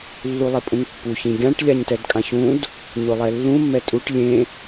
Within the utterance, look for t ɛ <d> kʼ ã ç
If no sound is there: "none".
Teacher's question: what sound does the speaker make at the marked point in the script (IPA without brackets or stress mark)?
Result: d